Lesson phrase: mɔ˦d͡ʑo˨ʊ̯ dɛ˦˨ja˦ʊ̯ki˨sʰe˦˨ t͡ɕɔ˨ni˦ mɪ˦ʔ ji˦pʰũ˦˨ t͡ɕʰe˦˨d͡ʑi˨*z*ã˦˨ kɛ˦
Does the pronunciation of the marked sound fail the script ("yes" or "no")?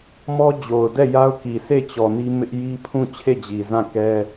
no